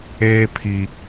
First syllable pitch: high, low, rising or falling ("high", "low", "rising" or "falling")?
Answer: high